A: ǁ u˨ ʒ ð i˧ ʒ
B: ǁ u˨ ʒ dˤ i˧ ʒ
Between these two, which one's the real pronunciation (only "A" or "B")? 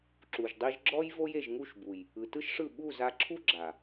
B